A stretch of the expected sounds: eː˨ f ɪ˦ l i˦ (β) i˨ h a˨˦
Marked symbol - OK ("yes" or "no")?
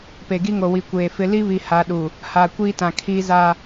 yes